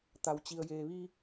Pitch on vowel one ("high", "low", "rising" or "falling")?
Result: low